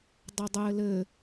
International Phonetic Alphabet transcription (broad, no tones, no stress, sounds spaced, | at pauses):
dˤ ɐ dˤ ɘː l ɘ